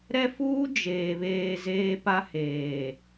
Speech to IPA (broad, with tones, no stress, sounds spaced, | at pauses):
ɾ ɛ˦ f uː˦ d͡ʒ eː˨ β eː˨ z eː˦ p a˦ h eː˨